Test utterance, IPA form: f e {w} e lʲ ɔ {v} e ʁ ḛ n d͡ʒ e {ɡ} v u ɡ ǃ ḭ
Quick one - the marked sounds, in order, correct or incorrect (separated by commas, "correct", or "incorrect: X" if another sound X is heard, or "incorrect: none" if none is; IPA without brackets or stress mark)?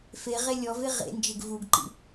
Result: incorrect: ʁ, correct, correct